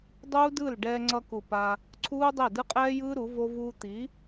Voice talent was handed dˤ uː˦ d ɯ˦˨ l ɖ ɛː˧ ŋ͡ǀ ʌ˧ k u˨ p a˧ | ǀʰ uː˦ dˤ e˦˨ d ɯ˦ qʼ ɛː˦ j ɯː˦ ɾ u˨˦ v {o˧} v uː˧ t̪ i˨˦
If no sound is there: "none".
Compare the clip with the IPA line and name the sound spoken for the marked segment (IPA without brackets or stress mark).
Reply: o˧